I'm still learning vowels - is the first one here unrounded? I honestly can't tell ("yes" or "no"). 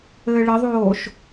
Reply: yes